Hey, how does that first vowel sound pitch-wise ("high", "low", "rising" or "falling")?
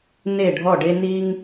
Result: falling